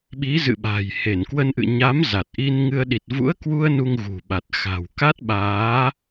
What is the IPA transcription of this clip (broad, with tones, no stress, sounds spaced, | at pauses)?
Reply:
ɓ i˨˦ z ɨ̰˧˨ ɓ a̤˨˩ j h e˧˩ n k w ə˧ n ʔ ɨ̰˧˨ ɲ a˨˦ m z a˨˩ t̚ ʔ i˧ n ŋ ɨ˧ ə̯ ɗ i˨˩ t̚ v ṵ˧˥ ə̯ k w u˧ ə̯ n u˧ ŋ ɣ ṳ˨˩ ɓ a˨˩ t̚ x a̤˨˩ w k a˦˥ t̚ ɓ aː˨˦